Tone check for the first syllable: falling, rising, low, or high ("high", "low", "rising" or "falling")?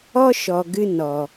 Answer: high